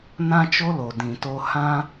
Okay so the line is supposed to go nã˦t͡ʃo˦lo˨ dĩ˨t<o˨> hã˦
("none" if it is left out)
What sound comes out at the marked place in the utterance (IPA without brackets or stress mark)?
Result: o˧